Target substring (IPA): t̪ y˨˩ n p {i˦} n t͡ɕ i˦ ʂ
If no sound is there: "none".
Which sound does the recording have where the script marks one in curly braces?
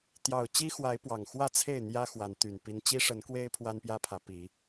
i˦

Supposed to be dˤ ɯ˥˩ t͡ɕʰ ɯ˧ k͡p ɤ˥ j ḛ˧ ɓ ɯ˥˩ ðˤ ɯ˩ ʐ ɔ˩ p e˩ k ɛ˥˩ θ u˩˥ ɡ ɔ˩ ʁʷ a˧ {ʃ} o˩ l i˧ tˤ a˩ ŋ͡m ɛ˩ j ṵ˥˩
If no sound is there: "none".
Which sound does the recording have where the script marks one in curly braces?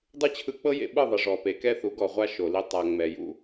ʃ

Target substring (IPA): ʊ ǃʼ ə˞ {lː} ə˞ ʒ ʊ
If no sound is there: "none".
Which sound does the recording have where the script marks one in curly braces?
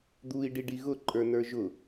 n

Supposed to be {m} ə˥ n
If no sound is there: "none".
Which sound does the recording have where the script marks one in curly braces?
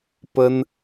p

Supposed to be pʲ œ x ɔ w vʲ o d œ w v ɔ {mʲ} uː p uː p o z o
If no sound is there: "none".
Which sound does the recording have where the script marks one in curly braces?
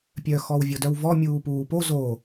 mʲ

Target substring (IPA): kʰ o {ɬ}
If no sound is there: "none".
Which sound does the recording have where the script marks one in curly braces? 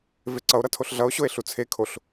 ɬ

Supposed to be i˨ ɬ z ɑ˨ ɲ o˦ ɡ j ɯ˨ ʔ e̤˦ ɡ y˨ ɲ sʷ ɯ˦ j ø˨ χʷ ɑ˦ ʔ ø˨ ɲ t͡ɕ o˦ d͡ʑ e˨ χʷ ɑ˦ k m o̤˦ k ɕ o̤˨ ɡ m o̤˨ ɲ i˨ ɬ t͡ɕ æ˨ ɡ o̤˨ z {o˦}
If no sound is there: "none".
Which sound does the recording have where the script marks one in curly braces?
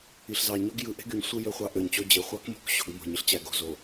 o˨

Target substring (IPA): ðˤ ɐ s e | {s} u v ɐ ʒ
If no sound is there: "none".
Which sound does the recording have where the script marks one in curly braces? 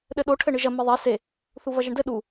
θ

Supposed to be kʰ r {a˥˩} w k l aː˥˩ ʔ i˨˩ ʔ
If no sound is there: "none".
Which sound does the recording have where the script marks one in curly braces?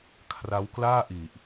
a˦˥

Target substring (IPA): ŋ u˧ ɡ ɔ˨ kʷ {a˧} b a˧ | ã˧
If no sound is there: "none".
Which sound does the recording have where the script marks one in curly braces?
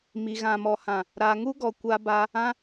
a˧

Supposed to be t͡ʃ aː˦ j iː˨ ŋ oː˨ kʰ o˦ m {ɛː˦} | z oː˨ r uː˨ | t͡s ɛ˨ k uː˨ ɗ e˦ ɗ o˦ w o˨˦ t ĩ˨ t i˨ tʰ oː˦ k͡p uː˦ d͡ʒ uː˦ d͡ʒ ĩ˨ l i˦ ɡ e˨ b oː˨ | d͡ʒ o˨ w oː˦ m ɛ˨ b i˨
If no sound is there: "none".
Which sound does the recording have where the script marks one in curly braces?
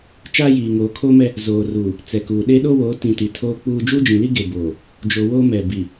ɛ˦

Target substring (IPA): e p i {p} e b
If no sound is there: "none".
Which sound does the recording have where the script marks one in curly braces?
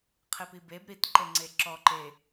b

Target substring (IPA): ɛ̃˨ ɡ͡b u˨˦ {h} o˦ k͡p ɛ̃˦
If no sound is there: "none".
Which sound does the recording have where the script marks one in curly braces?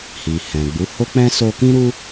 h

